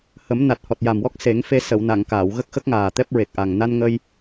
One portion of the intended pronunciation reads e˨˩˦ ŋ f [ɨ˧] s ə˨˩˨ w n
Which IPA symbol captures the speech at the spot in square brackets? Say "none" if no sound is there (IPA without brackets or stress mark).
e˧